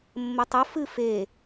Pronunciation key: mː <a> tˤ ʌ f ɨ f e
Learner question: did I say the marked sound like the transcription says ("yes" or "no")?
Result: no